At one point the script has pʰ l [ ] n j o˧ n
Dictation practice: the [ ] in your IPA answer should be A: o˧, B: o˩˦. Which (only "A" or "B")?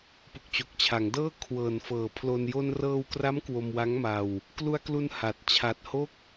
A